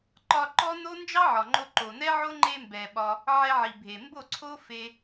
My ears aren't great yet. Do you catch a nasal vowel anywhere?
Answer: no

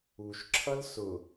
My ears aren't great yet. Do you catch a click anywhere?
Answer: yes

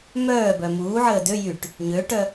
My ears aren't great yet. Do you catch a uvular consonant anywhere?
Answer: no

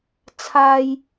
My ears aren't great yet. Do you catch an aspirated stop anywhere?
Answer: yes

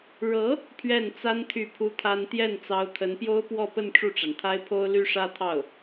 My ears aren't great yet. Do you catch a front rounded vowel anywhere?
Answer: yes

